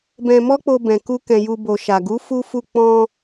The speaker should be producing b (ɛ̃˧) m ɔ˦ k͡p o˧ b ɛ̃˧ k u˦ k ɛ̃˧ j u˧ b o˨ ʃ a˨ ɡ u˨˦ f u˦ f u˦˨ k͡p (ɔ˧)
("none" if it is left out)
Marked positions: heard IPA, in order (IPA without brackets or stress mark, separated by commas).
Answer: ɛ̃˧, ɔ̃˧